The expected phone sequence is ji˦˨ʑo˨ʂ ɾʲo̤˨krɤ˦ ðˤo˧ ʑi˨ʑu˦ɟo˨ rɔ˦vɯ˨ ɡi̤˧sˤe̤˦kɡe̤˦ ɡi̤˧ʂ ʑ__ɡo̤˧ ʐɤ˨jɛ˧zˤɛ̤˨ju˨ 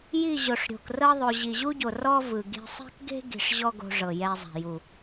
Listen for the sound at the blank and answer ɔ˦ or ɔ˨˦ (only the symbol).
ɔ˦